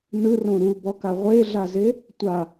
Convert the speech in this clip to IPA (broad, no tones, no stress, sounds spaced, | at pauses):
n ɯ r õ ɾ u b ɔ k a ʁʷ e ɮ a z e | tʷ a